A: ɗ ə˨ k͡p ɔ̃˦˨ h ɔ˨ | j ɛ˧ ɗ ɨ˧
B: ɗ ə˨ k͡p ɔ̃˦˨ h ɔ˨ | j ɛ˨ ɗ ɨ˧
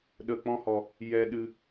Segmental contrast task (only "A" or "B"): A